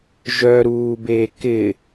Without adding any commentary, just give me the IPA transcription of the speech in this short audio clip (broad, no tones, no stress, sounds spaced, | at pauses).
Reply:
ʒ œ ɾ uː b eː k ɪ